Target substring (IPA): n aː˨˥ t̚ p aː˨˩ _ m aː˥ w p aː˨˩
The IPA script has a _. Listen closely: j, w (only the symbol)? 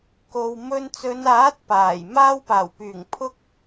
j